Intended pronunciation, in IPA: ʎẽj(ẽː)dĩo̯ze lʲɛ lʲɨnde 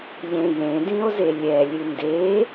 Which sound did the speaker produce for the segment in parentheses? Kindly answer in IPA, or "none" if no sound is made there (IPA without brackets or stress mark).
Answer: ẽ